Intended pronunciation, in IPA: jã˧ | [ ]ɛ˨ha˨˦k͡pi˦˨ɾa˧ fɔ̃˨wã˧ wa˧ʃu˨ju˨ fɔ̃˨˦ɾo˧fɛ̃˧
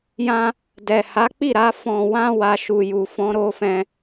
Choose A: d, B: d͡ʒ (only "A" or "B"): A